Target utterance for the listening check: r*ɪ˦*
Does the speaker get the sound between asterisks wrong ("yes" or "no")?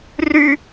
yes